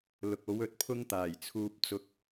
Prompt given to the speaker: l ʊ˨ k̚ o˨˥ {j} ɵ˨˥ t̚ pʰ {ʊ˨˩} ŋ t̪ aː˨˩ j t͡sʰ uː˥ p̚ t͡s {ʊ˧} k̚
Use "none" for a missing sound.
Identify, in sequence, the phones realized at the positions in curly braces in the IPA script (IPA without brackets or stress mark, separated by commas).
w, ʊ˥, ʊ˧